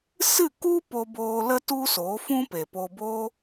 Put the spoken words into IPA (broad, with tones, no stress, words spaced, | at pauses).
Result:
sɨ˦˨ku˦ po˧boː˧ lə˦ tu˦soː˨˦ fũ˦ pe˨po˧boː˦